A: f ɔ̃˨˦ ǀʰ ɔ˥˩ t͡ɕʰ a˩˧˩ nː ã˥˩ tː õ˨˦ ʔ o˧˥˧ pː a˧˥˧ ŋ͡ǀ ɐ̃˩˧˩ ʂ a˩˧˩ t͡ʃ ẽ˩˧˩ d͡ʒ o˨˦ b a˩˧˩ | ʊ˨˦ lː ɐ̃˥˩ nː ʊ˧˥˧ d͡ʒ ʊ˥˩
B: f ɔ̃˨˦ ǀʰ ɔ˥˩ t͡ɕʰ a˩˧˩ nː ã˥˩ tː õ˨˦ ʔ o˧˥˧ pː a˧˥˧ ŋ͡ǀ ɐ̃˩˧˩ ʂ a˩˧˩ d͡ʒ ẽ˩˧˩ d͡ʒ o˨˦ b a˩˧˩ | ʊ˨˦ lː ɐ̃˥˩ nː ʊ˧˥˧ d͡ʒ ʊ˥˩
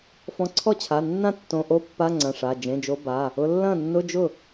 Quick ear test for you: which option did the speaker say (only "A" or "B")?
B